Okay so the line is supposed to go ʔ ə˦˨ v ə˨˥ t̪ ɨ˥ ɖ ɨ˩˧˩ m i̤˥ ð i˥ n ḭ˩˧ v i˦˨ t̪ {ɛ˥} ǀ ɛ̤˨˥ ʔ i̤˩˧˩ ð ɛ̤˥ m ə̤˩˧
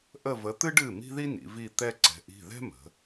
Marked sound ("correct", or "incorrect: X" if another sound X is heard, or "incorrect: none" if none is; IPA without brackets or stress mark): correct